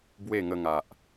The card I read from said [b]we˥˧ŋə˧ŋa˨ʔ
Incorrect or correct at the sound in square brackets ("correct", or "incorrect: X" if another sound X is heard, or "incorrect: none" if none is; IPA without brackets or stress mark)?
correct